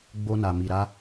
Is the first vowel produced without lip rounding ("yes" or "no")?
no